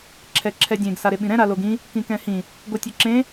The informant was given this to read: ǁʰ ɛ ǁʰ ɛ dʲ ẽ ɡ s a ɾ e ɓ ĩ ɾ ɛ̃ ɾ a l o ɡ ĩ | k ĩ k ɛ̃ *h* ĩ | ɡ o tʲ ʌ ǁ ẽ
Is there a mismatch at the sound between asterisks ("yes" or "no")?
no